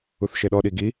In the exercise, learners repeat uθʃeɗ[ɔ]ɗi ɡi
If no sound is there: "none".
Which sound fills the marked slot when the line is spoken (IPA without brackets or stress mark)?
ɔ